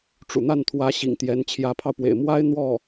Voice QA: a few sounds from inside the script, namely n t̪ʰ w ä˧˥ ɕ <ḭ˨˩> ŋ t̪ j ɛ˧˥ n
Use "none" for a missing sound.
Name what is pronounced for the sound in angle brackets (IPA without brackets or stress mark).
ḭ˨˩